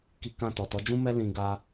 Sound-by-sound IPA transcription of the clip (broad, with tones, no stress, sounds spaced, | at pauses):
k i˦ k ã˦˨ t ɔ˨ t ɔ˨˦ d͡ʒ ũ˦ m ɛ˦ l ĩ˧ ɡ a˦